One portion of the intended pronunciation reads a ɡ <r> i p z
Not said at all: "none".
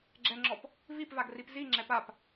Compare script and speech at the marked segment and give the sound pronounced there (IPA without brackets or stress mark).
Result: r